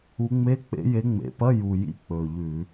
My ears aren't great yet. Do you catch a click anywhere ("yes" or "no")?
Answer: no